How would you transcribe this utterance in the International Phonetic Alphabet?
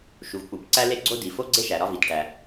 ʃ u˩ v k͡p u˩ b ǀ æ˥ l e˥ ɡ͡ǀ o˥ d i˩ f o˥ ɡ͡ǀ e˥ ʃ æ˩ ɾ ɒ˧ v i˩ t ʈ æ˩

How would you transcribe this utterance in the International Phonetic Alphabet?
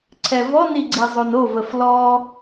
ǀʰ ɛ v ɔ n i ɡ͡ǀ i zˤ o n o v ə f l ɔ

